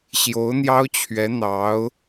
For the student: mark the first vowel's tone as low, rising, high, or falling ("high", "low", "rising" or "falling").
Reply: rising